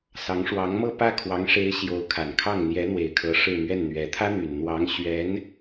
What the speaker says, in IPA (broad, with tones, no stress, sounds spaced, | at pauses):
s ɑ˧˥ ŋ ʂ w ɑ˧˥ ŋ m ɤ˥˧ p ä˥˩ kʰ w ɑ˧˥ ŋ ʂ e˧˥ ɪ̯ ɕ j o˧˥ ʊ̯ kʰ a˨˩ n kʰ ɑ˥˩ ŋ n̪ j ɛ˧˥ n̪ w e˨˩ ɪ̯ kʰ ɤ˧˥ ʂ ɻ̩˥˧ m ɥ ɛ˥˩ n n̪ ɥ ɛ˧˥ t̪ʰ ä˥ n̪ y˨˩ n n̪ w ɑ˧˥ ŋ ɕ ɥ ɛ˧˥ n